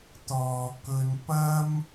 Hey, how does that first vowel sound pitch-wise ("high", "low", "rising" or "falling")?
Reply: low